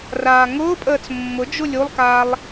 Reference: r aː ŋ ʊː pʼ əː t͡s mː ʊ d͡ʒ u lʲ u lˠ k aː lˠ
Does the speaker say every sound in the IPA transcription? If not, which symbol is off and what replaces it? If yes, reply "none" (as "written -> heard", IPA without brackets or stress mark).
none